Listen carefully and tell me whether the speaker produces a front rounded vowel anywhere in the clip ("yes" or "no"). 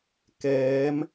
no